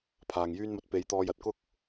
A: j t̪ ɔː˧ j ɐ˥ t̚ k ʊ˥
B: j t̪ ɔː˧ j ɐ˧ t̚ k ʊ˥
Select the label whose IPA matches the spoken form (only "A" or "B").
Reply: B